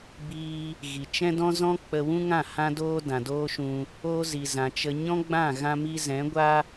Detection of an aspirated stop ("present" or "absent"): absent